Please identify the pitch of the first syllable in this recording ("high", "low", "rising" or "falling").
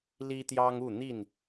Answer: high